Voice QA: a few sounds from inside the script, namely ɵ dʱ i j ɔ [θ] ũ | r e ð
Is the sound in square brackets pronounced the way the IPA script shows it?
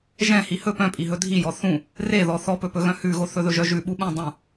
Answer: yes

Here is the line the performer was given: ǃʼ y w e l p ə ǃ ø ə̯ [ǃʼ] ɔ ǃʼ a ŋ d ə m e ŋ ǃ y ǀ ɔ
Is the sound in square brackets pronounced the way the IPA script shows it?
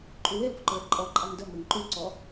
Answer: yes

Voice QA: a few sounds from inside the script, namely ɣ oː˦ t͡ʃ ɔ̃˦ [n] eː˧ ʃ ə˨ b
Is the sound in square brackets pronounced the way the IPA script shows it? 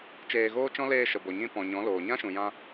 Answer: no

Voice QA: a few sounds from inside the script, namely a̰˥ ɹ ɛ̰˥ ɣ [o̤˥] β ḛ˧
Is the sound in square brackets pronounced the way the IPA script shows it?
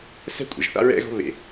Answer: yes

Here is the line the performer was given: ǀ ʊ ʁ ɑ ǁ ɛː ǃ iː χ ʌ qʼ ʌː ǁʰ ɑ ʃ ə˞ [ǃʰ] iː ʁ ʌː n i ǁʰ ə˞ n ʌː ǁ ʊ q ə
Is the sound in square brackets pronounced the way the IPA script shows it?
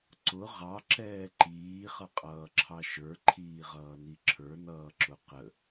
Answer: yes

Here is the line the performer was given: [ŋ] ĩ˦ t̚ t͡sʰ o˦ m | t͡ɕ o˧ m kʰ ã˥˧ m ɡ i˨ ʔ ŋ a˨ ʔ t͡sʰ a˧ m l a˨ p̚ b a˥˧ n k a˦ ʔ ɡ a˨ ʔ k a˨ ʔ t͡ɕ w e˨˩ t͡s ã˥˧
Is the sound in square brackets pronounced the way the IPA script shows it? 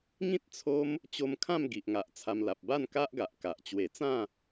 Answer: yes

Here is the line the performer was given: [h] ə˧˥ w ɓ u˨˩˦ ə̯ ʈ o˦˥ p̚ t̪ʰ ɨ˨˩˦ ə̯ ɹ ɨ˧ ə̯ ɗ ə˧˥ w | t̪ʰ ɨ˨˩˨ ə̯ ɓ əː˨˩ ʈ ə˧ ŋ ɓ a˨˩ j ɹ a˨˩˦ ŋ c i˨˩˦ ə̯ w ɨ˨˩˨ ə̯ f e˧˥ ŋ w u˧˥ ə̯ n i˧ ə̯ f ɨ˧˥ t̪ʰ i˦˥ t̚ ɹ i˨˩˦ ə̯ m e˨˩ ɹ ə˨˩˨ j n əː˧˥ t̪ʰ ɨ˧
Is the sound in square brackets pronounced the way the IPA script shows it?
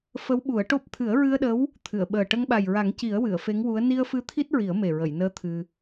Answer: no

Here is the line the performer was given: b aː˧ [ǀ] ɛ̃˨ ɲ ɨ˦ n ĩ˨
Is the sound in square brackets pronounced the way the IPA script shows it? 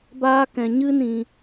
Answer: no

